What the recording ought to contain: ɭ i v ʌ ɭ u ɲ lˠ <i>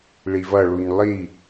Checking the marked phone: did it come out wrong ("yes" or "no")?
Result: no